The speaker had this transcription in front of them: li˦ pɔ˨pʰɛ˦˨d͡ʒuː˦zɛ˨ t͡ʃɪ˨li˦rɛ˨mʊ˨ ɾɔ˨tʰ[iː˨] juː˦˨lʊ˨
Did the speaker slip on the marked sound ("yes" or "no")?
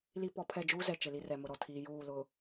no